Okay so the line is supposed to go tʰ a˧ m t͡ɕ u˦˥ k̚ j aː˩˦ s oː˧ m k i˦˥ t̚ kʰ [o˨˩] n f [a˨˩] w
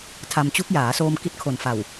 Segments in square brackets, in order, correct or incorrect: correct, correct

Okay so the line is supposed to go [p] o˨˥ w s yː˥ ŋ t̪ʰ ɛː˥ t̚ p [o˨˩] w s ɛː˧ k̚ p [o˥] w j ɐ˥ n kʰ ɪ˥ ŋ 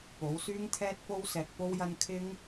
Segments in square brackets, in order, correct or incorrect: correct, incorrect, correct

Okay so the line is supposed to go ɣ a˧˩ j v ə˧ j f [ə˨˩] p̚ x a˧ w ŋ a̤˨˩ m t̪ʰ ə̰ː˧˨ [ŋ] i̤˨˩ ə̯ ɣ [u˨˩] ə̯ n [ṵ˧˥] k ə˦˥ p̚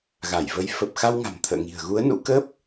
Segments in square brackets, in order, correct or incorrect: correct, correct, incorrect, correct

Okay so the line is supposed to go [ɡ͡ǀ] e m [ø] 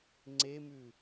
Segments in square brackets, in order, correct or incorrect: incorrect, incorrect

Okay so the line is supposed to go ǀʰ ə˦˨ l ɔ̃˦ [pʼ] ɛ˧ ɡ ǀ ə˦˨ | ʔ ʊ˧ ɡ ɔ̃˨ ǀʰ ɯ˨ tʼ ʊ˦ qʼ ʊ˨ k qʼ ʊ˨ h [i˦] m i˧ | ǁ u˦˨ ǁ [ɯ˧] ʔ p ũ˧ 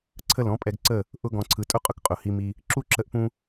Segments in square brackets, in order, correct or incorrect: correct, incorrect, incorrect

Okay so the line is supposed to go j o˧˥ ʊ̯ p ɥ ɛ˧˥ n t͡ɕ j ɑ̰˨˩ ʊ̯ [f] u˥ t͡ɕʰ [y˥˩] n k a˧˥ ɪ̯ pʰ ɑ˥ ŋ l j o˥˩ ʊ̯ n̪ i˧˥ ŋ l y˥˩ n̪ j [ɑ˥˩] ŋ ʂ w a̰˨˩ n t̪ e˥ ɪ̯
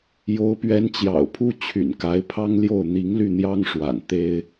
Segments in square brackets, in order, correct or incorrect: incorrect, incorrect, incorrect

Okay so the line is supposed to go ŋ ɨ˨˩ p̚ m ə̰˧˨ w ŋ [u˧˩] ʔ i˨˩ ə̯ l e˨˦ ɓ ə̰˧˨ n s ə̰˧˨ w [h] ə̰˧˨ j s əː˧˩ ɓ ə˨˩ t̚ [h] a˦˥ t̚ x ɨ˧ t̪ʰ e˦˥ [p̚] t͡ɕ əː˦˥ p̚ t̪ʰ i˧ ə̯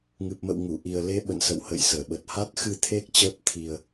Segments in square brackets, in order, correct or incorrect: correct, correct, correct, incorrect

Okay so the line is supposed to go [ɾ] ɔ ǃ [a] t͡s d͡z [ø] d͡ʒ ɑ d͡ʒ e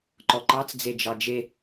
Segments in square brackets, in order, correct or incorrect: incorrect, incorrect, incorrect

